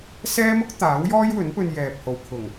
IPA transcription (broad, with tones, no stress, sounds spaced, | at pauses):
s ɛː˥ m ʊ˥ k̚ t̪ aː˨˥ w j ɔː˥ j w ɵ˨˥ n p ɵ˧ n j ɛː˨ p̚ h o˨ w kʰ ʊ˨˩ ŋ